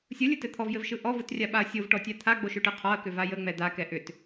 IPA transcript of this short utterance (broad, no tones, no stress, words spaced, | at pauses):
sʲɯlʲɯtɘ t̪ʰɔvjɘvʃɯ ʔɔvɯtrʲaɓaɐ̯ sʲovʈɔtʲa t̪ʰaɡ͡boʃʏʈɯ qʰɔɐ̯kʏva jəŋ͡mɛ d̪akɛ ʔʏt